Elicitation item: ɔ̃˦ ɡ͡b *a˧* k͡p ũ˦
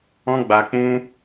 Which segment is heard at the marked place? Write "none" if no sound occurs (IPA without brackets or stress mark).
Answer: a˧